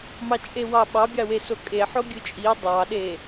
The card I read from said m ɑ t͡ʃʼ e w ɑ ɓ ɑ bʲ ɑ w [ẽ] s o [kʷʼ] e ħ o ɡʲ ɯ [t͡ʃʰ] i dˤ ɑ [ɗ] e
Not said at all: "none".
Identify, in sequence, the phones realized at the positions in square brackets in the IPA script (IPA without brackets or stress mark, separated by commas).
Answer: e, kʼ, t͡ʃʼ, ɗ